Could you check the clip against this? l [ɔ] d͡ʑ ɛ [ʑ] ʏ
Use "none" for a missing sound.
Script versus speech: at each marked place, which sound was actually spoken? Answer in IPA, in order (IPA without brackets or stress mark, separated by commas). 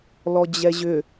ɔ, ʑ